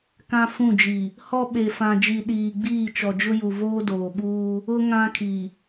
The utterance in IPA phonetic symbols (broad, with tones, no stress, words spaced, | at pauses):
kã˦fũ˦˨d͡ʒi˨ | hɔ˦ ɓe˨fã˨d͡ʒi˨ ɗiː˨ɡ͡biː˦˨ t͡ʃɔ˨d͡ʒʊ˦ju˨ voː˦doː˨ɓuː˦ | ʊ˦ ŋã˦kʰi˨